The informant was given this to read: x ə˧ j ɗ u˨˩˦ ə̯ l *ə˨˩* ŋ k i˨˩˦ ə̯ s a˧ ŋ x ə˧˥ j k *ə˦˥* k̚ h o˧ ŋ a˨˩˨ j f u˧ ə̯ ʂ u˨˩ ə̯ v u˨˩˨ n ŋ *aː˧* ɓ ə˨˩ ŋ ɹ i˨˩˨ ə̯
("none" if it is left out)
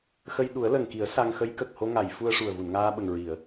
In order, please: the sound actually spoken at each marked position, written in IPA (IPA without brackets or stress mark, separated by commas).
ə˨˩, ə˨˩, aː˧